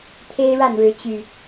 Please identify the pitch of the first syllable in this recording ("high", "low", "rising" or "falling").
high